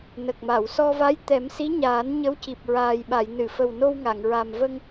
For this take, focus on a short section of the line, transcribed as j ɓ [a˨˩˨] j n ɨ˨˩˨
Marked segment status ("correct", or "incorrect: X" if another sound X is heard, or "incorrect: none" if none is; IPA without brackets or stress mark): correct